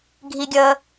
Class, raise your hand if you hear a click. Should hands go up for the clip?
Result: no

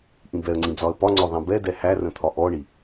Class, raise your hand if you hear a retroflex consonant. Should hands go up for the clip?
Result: yes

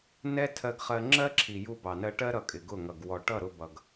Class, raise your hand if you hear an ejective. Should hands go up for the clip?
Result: yes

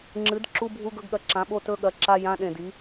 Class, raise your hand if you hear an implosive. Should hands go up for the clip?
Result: yes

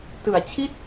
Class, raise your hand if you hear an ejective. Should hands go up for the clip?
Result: no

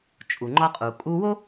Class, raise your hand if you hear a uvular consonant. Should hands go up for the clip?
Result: yes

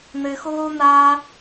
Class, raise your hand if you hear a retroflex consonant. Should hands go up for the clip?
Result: no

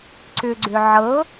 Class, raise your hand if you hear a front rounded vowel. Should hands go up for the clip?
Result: yes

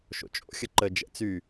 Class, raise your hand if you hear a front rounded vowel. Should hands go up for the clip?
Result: yes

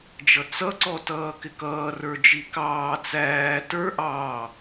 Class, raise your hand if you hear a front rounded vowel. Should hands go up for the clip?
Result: no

